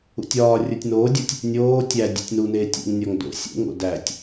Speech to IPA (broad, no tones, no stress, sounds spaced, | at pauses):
ṵ tʲ ɒː rʲ u tʲ n oː dʲ o tʲ | nʲ oː tʲ æ dʲ ṵ tʲ n u n eː tʲ ḭ ŋ nʲ ɒ ŋ d o̰ sʲ ṵ ŋ o̰ d æ tʲ